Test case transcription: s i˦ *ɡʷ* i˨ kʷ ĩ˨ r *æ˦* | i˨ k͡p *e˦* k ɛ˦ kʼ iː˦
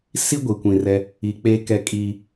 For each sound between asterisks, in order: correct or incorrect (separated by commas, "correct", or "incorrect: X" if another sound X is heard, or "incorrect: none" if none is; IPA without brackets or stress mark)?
correct, incorrect: ɛ˦, correct